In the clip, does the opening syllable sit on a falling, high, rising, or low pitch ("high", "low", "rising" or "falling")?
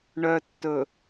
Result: low